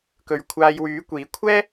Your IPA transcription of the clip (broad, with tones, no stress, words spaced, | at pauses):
kɵ˨˧ɥkʷʰaː˧j wyː˨˥kʷiː˨˥ kʷʰɛː˥